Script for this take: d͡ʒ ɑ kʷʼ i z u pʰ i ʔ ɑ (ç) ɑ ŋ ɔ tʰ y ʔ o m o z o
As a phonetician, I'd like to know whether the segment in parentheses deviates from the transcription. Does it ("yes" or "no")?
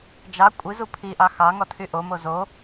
yes